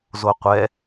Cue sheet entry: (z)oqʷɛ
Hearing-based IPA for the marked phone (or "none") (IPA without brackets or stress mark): z